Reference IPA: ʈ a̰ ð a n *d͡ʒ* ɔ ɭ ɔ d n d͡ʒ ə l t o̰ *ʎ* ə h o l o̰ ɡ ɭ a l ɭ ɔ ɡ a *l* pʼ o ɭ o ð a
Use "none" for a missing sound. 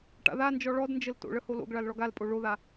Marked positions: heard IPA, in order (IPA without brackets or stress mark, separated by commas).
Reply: d͡ʒ, ɭ, l